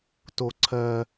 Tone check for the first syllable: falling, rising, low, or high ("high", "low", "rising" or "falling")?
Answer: high